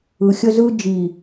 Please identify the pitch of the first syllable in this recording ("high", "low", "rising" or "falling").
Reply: low